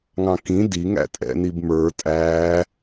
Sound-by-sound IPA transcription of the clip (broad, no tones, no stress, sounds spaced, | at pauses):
ŋ ɑ̃ k ĩ d i ŋ æ̰ tʼ ɛ̰ n i b m ə˞ tʼ æː